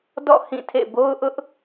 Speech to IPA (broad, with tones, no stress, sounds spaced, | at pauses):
d ɔ̰˦˨ h ĩ˦˨ tʰ ḛ˦˨ b o˦ ʊ̯ ʔ ʊ˦ ʔ